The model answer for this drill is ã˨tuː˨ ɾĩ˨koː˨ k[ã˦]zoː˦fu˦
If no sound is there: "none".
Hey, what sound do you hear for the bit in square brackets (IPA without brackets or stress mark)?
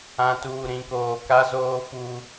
a˦